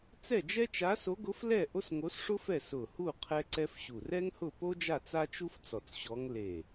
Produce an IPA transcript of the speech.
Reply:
t͡sɛ˥˨d͡ʒɛ˥ t͡ʃa˧˥so˧˥ɡʊ˧˥flɛ˥˨ ʔo˥sŋo˧˥sʂʊ˥fɛ˥˨ sʊ˧˩hu˥˨ qʰɛ˥ǀɛ˥fɕu˧˩ rɛ˥ŋhʊ˥˨ po˥d͡ʒa˥˨ t͡sa˥t͡ʃu˥f t͡sɔ˧˩t͡sɕɔ˧˥ŋ le˧˩

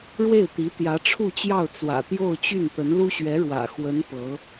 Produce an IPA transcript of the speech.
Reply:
ɻwe˥˩ɪ̯t̪i˧˥ t̪jä˧˥ʈ͡ʂʰu˥˧t͡ɕjɑ˥˩ʊ̯ t͡swä̰˨˩t̪jo˥˧ʊ̯t͡ɕy˥˩nt̪ə˧˥n lu˥ɕɥɛ˧˥ɻwä̰˨˩ xwə˧˥n pɤ˧˥

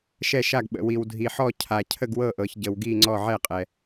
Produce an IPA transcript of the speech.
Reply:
ʃɛ˧˩ʃa˧˩ɡɓə̰˩ wi˩wdʱi˩ħɔ˧˩ cʰa˩ cʰə˧˩ɡwɤ˧˩ʔɤ˩ç ɟə˩wɡi˧˩ ŋ͡ǀɔ˧˩ʕɛ˧˩qʼɛ˩

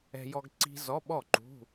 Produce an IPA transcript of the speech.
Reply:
ɛ̤˧jɔ˧ɡ ǀi̤˧ zɔ˧˥˧ɓɔ˥˩ǃṳ˧˥˧

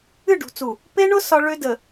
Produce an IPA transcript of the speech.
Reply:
ɨ˦˨ɖṳ˨t͡su˨ | pe˦ɳʊ˦ sɒ˦ ɭø˦də˨

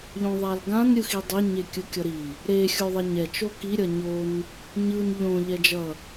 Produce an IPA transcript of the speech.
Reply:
ʎõðˤalɡãn ɾʲɯxidˤe ɲekʲɯkʲʌɾi | ɾe xʲoðˤɛɲɛ t͡ʃoki ɾʲʌɲon | ɲɯn ʎõ ʎɛd͡ʒʌ

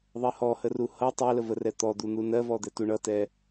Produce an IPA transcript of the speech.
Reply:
ðˤɜhɔhə ruhʌ tˤɛləvərɛ t̪ɔd̪un̪u nɜvɔd̪ɛ tuɳʌtɛ

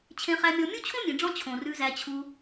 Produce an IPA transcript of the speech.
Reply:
t͡ɕʰẽ˧χæ˧mʲɔ˧ mʲu˦t͡ɕʰõ˦mʲẽ˨ɖ͡ʐɔ̃˧ t͡ɕʰõ˨rʉ˧zæ˧ t͡ɕʰu˧

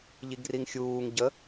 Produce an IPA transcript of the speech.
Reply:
ʎiɡriŋxʲuːŋ ɟə

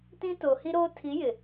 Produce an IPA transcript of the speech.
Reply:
tĩ˦toː˨hi˦ɾoː˦ tʰi˨˦ jɪ˨

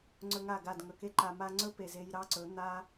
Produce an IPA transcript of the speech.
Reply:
ŋ͡ǀɵ˧ŋa˦˨ɡa˦˨d ŋɵ˨ke˦ ǃa˨ma˧ŋ͡ǀɵ˦ pe˨ze˧j ɾɑ˦ǀɵ˨˦ n̪a˦

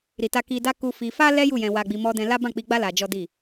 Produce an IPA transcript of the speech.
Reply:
ɾi˨ta˧ ki˧da˦ ku˧ fi˧ fa˦lɛ˦ ju˦˨jɛ̃˧wa˧ɡ͡bi˧ mɔ˧dɛ̃˧la˦bã˦˨ k͡pi˧ɡ͡ba˦ la˧d͡ʒɔ˦di˦˨

